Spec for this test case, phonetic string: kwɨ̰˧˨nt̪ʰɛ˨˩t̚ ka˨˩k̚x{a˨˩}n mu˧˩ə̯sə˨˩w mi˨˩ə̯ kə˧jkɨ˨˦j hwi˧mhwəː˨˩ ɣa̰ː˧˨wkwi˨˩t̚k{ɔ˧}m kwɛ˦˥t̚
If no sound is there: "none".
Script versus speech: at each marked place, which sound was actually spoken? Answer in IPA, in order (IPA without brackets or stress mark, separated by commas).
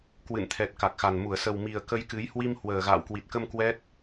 a˨˩, ə˧